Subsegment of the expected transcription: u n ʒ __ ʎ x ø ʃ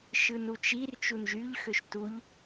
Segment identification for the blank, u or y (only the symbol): y